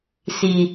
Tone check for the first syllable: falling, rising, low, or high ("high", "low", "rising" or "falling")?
low